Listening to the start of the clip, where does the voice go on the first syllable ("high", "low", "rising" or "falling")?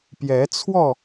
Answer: rising